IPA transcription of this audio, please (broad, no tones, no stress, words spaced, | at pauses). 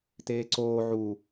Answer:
teːǀoː ʕu